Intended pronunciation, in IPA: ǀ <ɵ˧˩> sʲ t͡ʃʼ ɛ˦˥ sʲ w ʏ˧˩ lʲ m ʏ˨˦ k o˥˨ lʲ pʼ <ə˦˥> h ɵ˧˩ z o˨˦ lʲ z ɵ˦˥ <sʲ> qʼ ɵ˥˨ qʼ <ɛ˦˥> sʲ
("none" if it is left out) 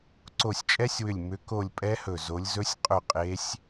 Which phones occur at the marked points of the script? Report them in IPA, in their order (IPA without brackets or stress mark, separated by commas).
o˧˩, ɛ˦˥, sʲ, e˦˥